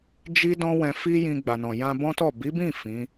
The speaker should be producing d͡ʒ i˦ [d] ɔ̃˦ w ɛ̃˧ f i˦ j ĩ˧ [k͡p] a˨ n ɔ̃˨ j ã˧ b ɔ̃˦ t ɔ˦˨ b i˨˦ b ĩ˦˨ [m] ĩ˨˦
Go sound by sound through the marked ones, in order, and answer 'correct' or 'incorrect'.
correct, incorrect: ɡ͡b, incorrect: f

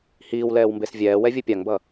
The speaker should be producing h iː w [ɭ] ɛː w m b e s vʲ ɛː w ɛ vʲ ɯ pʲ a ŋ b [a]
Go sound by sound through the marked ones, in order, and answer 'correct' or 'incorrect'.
incorrect: l, incorrect: ʌ

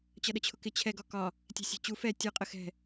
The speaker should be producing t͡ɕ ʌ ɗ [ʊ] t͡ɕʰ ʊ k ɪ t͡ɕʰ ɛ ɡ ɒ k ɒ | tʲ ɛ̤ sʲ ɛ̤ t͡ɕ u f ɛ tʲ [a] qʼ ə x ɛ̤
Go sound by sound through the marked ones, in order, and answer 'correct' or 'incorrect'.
incorrect: ə, incorrect: ʌ

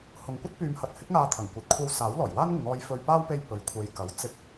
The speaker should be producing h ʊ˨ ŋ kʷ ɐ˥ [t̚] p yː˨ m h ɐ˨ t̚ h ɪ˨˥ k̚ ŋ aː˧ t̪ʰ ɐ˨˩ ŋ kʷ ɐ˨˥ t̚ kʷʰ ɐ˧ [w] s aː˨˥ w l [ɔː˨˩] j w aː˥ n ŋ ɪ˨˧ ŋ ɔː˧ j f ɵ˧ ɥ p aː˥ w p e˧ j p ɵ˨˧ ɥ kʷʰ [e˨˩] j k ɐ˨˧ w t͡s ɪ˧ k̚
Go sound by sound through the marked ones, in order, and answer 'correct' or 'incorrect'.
correct, correct, correct, incorrect: e˨

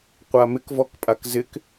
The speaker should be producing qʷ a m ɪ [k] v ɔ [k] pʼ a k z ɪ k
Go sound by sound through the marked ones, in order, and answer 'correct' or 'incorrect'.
correct, correct

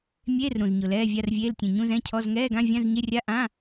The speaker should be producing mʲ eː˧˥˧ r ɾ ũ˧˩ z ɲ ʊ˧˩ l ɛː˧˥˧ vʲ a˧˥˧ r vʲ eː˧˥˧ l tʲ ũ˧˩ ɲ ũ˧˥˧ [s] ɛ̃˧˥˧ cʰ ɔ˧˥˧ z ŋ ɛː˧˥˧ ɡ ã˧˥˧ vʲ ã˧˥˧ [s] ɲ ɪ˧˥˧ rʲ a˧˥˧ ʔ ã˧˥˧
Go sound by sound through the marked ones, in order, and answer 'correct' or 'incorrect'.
incorrect: z, incorrect: z

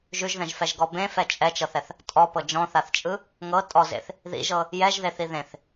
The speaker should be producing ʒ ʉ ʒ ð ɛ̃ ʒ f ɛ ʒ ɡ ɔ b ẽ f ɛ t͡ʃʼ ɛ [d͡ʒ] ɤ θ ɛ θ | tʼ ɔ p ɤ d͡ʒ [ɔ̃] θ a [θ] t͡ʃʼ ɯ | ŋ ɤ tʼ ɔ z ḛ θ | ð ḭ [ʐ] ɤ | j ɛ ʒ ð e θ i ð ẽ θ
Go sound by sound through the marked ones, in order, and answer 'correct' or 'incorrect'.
incorrect: t͡ʃ, correct, correct, incorrect: ʒ

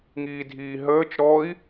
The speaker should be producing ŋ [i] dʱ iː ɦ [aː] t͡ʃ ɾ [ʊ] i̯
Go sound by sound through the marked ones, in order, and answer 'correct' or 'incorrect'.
incorrect: iː, incorrect: əː, incorrect: ɔ

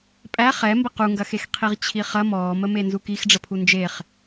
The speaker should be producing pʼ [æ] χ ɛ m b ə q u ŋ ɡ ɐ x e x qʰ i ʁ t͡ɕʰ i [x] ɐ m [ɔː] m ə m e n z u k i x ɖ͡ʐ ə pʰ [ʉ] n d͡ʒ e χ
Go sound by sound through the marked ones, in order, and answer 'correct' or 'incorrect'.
correct, incorrect: χ, correct, incorrect: u

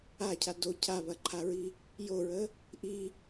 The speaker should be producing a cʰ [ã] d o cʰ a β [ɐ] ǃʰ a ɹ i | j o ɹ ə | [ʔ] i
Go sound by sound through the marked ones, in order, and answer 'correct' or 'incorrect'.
incorrect: a, correct, correct

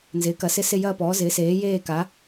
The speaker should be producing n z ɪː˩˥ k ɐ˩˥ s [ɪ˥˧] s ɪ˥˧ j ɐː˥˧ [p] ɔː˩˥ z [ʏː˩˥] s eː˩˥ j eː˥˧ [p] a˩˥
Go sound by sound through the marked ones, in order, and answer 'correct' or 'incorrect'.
correct, correct, incorrect: ɪː˩˥, incorrect: k

